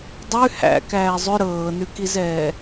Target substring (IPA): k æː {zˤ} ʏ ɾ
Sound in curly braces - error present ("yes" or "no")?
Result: no